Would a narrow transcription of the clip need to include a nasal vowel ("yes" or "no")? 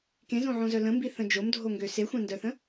yes